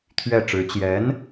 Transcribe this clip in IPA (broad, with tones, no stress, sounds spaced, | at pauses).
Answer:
t̪ʰ ɥ ɛ˥˩ ʈ͡ʂ ɻ̩˧˥ t͡ɕ j ɛ˧˥ n